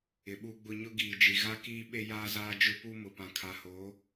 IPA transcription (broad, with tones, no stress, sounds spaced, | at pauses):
ɪ˨ ɓ u˦ ɡ͡b ʊ˦ ɲ ʊ˦ ɡ iː˨ d͡ʒ i˨ ɣ a˦ k iː˦ ɓ e˦ j aː˦ z aː˦ d͡ʒ ʊ˦ p u˦ m ʊ˨ p ã˨ kʰ a˨ h oː˨˦